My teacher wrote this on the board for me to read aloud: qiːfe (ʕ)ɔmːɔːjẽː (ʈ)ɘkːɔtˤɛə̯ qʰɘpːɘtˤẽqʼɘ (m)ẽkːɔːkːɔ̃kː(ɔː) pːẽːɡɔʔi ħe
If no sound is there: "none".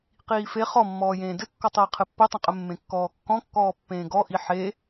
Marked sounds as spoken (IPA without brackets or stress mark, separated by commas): χ, d, mː, ɔː